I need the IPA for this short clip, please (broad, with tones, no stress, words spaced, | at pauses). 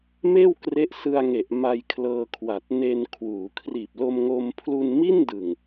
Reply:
meː˥˩w kre˦˥ʔsɯ˧a̯ŋe˨˩ʔ ma˧jkʰlɤː˧kʰwa˨˩t̚ ne˧nkʰwuː˩˦kʰriː˨˩p̚ lo˧mŋo˧mpʰlu˧n mi˥˩ndɯ˨˩ŋ